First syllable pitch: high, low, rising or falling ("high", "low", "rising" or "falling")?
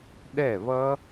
falling